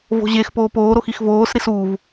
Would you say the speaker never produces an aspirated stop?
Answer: yes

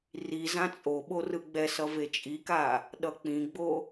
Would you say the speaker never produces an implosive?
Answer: no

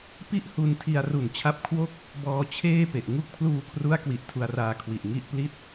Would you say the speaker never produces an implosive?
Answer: yes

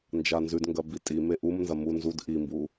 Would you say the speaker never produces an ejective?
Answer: no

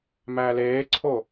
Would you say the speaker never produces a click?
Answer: no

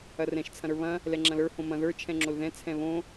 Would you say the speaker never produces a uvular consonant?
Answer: yes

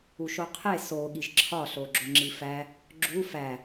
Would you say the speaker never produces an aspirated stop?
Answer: no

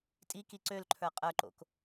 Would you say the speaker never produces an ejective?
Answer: no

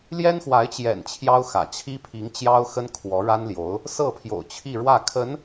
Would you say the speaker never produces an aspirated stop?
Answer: no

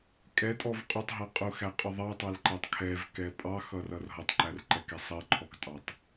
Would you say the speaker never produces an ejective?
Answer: no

